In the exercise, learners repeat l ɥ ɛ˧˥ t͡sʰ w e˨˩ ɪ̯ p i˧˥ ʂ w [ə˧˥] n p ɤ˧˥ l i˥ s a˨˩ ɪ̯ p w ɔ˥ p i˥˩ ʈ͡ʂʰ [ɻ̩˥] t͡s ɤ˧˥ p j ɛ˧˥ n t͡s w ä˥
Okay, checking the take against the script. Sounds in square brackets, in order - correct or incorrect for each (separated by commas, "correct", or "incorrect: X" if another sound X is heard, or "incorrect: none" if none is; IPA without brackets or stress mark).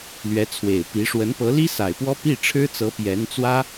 correct, correct